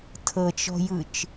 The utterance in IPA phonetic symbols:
tʰ ɤ t͡ʃ ɔ̤ j ɯ t͡ʃ

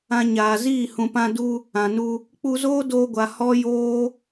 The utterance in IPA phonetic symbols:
ã˧ ɲ aː˨ z iː˦˨ h ũ˨ p ã˧ d u˧ | ã˨ n u˧ | k͡p u˧ z oː˦ d oː˧ ɡʷ a˨ h ɔ˦ j oː˦

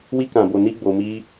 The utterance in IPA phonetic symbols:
w i˧ k ã˨ b o˨ n i˧ ɡ͡b o˧ m i˦

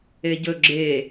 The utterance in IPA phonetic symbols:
e ɟ ɵ ɡ͡ǁ e

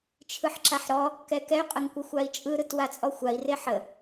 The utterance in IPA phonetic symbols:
t͡ʃʰ ɯ ħ ǁ a ħ ɾ ɔ | k ɛ k ɛ y̯ qʼ ə ŋ kʷ ə xʷ a i̯ t͡ʃʼ ɯ ɾ ɯ t w a t͡sʼ ɔ xʷ a i̯ r e ħ ə

